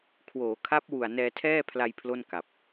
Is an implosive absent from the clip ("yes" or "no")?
yes